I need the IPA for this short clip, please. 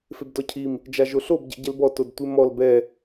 f e b d ɔ cʰ i m | d͡ʒ a ʒ o ɬ o b ɟ ɛ̰ ɟ ɛ l b ɔ t o d tʷ ɪ m ɔ l b ɛ

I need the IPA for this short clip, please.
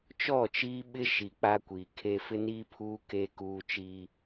t͡ʃ ɔ˦˨ t͡ʃ iː˦ ɓ ɪ˦ ʃ i˨ k͡p a˦ kʷ iː˨ kʰ e˦ f ɪ˦ n iː˦ pʰ uː˦ k e˦ k uː˦ t͡ʃ iː˦

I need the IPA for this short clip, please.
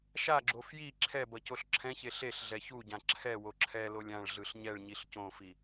ʃ a ɡ͡ǁ o f j i ǁʰ ɛ b ʌ c o ɬ ǁʰ ɛ̃ ç e ɬ e ɬ ɮ ɛ ç u ɟ ã ǁʰ ɛ w o ǁʰ ɛ l o lʲ ã ɭ ɮ ɯ ɬ ɲ ɛ ɭ ɲ i ɬ c õ f i

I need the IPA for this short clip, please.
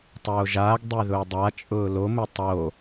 tˤ oː ʒ aː ɡ dˤ ø ð ʊː dˤ a t͡ʃʼ ʊː l o m ʊ tˤ o

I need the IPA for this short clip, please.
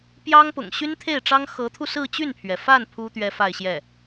p j ɑ˥ ŋ p ʊ̰˨˩ ŋ ɕ y˥ n t̪ʰ e˥˩ ɪ̯ ʈ͡ʂ ɑ˥ ŋ x ɤ˧˥ t̪ʰ u˧ s ɹ̩˥˧ t͡ɕ y˥˩ n pʰ ɥ ɛ˩ f a˥˩ n pʰ u˥ t̪ ɥ ɛ˥ f a˥˧ ɪ̯ ɕ j ɛ˥˩

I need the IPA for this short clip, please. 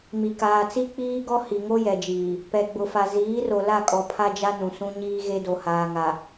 m i˨ k aː˨ t͡s i˦ k͡p iː˦ ɡ ɔ˦ h i˨ ŋ o˦ j ɛ˨ d͡ʒ iː˨ | p ɛ˨ ɡ͡b ʊ˨ f a˨ z iː˨˦ r o˨ l a˦˨ kʼ ɔ˨ pʰ a˦ d͡ʒ a˦ n ũ˨ s ũ˦ ɲ iː˦ ɣ e˦ d o˨ h aː˨ ŋ a˨

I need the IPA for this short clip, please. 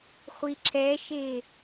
χʷ i ǁ ɛ ʃ e

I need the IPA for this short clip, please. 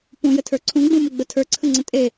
p ũ j ə tʰ ə˞ ǀʰ ũ ɡ͡b ũ m ʊ ɡ͡b ə tʰ ə˞ ǀʰ ə ŋ͡ǀ ə̃ tʼ e

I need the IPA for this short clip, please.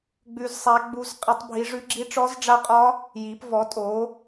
ɡ͡b ʉ˦˥ z sˤ æ˦˥ ɡ͡b u˦˥ z qʼ i˦˥ tˤ bʱ i˦˥ ʐ ʉ˦˥ ɡ͡ǁ i˦˥ ʈ͡ʂ ɔ˦˥ z ɖ͡ʐ a˦˥ qʼ ɒ˦˥ | j i˨˦ p v ɔ˨˦ tʼ o˨˦

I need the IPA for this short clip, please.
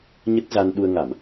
ɲ ə˦˥ t̚ z a˧ n ɗ u˧ ə̯ ŋ a˧˩˨ m

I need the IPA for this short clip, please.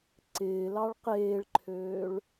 ǀ ɪː l ɑ ɭ q eː ɭ ǃʰ øː ɭ

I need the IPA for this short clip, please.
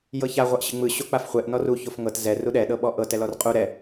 j ɤ ç a ʁʷ a ʔ ɕ ɯ ŋ͡m ɯ ɕ o k͡p a f χʷ ɛ ʔ n ɔ r u ç o f ŋ ɤ t z ɛ r u ɗ ɛ ɗ ɤ ɓ ɔ ʔ ɤ t ɛ l ɔ r qʼ u ɾ ɛ

